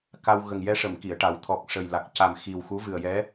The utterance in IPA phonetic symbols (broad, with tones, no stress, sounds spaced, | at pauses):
k a˧ w ɣ ə˨˩ ŋ j ɛ˧ ʂ ə˨˩˨ m k i˨˩˨ ə̯ ʈ a˨˩˦ w t̪ʰ ɔ˨˩ k̚ ʂ ə˨˩ j l a˨˩ k̚ c a˨˩ m x i˨˩ w x u˧˥ v ɨ˨˩ ə̯ j ɛ˧˥